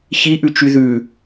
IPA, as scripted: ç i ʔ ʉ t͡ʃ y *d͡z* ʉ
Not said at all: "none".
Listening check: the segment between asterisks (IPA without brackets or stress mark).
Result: ð